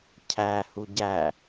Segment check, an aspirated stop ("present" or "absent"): present